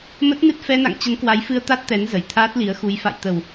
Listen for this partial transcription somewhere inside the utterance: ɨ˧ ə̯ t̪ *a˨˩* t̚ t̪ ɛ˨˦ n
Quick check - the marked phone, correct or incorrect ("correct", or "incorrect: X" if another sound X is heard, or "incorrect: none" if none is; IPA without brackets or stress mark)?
incorrect: a˦˥